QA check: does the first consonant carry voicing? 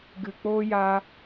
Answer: yes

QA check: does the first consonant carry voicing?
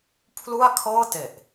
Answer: no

